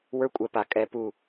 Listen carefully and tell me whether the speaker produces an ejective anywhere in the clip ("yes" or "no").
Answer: yes